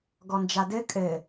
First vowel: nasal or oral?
oral